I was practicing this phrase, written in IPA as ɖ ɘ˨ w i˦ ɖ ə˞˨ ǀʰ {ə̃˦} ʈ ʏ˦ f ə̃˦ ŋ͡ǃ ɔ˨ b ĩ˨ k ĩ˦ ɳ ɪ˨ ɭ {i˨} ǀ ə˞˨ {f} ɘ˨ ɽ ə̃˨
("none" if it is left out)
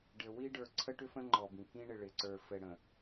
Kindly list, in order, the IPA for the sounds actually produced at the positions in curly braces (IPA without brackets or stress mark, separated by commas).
ə˦, ɪ˨, f